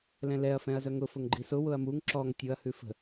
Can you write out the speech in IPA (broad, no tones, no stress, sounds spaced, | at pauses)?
l ɛ̃ l ɛ ɐ̯ f ɛ̃ ɐ̯ z œ ŋ ʊ f ʊ ŋ ɡ͡ǃ i s ʊ w ʊ ɐ̯ m u ŋ ǁ ɔ ŋ tʲ ʊ ɐ̯ h ʉ f ə̤